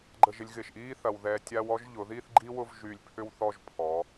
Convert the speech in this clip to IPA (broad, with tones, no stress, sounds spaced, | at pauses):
ɡ͡ǃ ə˥˧ ʒ ɪ˥ lʲ ɣ ɪ˧˩ ʃ ʔ iː˥ θ ɐ˧ w ð ɛ˧ tʲ a˥ w ɔ˥ ʒ ʎ ʊ˩˧ ð i˥˧ θ ɡ͡ǃ i˥ w ʊ˥˧ v ʒ y˧˩ lʲ pʰ ʏ˥ w θ ɔ˥˧ ʒ pʰ ɔ˩˧